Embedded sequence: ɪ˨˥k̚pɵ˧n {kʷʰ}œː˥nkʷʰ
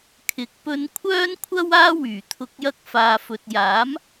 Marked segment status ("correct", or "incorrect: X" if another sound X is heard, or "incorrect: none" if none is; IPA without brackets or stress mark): correct